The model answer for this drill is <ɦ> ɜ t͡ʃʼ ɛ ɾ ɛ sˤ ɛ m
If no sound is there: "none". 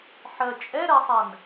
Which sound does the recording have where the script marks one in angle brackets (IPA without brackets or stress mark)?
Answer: ħ